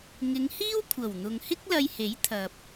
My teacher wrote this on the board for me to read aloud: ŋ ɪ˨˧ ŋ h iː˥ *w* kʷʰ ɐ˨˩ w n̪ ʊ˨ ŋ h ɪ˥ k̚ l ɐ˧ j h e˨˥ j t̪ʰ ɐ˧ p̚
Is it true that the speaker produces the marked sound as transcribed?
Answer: yes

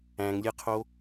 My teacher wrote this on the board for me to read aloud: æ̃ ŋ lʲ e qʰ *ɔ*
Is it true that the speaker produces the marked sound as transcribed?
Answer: no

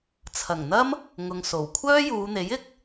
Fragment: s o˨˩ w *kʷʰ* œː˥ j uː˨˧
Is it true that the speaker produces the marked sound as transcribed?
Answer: yes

